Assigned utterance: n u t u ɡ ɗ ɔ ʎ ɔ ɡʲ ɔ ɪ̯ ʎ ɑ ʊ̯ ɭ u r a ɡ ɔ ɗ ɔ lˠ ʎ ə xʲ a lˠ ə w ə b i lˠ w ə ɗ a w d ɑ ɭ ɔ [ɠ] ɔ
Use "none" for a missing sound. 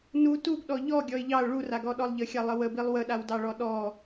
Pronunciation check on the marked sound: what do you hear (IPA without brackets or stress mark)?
ɗ